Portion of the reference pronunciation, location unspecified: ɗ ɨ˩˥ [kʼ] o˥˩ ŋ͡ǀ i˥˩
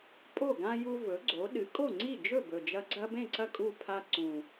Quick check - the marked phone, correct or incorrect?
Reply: correct